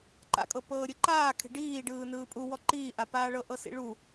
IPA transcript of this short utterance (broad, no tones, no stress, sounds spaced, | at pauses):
ǃ a̰ kʼ ɤ p ɤː ɾʲ ɯ ǃ aː kʰ e̤ ɖ iː ɖ ɯː n ɯː pʼ u w ɔ ǃ iː ʔ a p aː ɭ ɤ ʔ ɤ s ḭ ɭ u